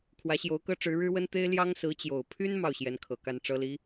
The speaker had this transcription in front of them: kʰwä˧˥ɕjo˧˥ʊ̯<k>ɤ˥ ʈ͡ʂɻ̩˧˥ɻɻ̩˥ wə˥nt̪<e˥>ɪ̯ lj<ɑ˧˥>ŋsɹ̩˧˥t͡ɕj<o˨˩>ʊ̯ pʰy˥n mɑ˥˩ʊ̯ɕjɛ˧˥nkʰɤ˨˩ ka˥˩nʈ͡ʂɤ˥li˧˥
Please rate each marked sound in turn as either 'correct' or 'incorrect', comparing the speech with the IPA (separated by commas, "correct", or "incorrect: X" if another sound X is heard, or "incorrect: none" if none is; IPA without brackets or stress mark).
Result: correct, correct, incorrect: ɑ˥, correct